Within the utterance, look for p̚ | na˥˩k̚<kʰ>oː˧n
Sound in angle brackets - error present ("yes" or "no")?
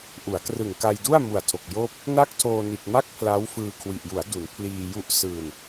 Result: yes